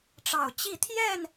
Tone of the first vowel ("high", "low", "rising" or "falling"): low